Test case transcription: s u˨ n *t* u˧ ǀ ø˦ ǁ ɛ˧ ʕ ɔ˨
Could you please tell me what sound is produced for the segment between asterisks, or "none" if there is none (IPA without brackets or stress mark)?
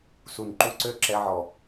ǃ